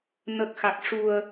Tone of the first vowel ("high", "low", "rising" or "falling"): low